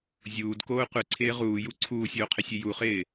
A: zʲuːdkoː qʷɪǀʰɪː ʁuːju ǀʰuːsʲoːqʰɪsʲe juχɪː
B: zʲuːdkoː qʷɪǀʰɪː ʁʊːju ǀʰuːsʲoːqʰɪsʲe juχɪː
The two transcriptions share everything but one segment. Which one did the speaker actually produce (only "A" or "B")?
A